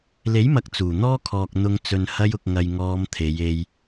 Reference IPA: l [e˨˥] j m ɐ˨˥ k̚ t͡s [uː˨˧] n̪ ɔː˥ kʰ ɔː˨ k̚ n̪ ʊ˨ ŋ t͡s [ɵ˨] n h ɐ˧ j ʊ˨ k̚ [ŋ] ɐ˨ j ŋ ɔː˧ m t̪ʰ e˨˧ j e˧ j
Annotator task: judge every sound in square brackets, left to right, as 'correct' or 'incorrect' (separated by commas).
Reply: correct, incorrect, correct, correct